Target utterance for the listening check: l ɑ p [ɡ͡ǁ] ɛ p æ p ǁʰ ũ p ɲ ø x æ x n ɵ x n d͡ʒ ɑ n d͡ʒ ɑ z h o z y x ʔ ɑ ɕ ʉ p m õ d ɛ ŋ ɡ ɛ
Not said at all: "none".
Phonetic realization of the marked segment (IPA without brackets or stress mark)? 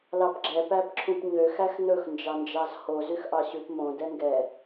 ɡ͡ǁ